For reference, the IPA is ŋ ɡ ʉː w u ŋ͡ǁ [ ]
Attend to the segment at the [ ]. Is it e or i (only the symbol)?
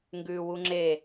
e